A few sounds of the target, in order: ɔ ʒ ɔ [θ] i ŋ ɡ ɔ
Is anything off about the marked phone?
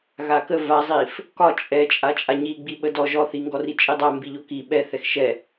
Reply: no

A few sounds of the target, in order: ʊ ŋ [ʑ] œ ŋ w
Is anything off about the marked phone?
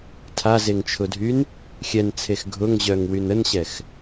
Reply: no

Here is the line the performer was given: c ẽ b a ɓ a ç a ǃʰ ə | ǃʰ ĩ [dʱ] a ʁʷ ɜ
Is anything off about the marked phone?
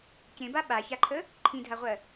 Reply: no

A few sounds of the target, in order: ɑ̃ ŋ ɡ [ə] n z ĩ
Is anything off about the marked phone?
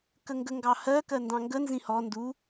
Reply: no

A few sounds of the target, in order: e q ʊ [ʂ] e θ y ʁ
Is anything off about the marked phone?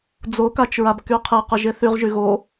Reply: yes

